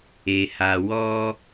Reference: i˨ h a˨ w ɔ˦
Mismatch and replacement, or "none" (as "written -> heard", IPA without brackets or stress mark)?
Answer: i˨ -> e˨